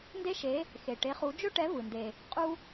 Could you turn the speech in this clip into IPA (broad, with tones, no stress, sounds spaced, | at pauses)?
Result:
n d e˦ ʃ e˨˦ | x e˩ ʈ e˨˦ χ u˨˦ d͡ʒ ɵ˦ ʈ ɛ˨˦ v ɯ˩ n d e˩ | qʼ u˦